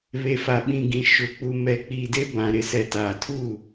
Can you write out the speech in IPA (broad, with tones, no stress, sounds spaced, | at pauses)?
β e˨ f a˨ ɓ ĩ˨ ɡ ĩ˨ ʃ ʊ˨ k͡p u˨ m ɛ˨ k͡p iː˨ d e˦ b ã˨ ɾ ɪ˨ s ɛ˨ t aː˨ tʰ u˦˨